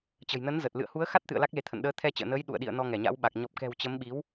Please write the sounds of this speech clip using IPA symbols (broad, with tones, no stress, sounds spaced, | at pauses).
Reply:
t͡ɕ ə̤˨˩ j n ə˨˦ n z ə˨˩ t̚ l ɨ̰˧˨ ə̯ h u˨˦ ə̯ x a˦˥ t̚ t̪ ɨ̰˧˨ ə̯ l a˦˥ k̚ l e˨˦ t̪ʰ ə̰˧˨ n ɗ əː˨˦ t̪ʰ ɛ˧ t͡ɕ ə̰ː˧˨ n əː˨˦ j ɗ ṵ˧˨ ə̯ ɗ ḭ˧˨ ə̯ n ɔ˧ ŋ ɛ˧˩ ɲ a̰˧˥ w ɓ a˨˩ k̚ ɲ ɔ˨˩ p̚ k ɛ̤˨˩ w t͡ɕ ə˨˦ m ɓ i˨˦ w